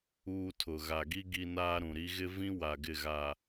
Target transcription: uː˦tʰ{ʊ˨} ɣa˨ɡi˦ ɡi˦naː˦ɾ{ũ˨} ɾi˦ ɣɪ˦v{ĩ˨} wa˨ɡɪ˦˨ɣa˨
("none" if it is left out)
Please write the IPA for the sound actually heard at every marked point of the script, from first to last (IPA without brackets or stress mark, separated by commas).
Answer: ʊ˨, ũ˨, ĩ˦